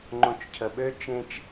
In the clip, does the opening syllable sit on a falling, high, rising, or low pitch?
low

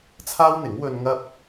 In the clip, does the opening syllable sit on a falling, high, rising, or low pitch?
high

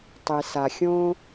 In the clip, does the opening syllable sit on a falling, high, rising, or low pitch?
low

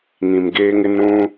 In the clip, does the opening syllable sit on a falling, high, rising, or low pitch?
low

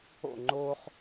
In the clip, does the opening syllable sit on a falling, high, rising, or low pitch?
falling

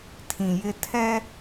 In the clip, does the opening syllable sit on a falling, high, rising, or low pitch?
low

